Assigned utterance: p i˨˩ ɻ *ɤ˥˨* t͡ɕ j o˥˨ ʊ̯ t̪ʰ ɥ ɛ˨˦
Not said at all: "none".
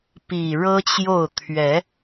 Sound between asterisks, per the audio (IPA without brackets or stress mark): ɤ˦